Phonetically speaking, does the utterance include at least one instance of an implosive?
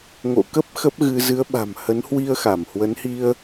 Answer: yes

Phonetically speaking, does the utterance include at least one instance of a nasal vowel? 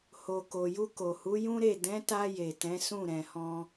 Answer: yes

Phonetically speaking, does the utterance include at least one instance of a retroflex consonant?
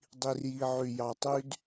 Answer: no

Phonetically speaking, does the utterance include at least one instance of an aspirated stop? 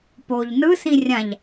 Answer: no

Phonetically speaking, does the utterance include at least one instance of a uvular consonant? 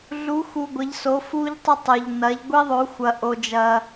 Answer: no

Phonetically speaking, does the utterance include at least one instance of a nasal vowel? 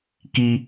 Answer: no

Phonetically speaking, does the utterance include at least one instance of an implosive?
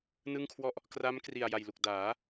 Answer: no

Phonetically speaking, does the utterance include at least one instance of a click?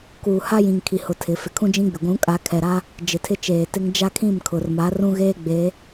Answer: no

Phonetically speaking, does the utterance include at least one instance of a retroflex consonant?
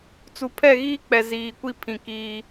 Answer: no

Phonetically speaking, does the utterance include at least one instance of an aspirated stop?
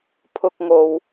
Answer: yes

